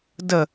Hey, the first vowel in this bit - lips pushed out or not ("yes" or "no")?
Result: no